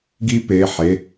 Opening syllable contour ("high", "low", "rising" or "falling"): high